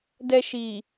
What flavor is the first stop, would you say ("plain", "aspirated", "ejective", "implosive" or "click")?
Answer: plain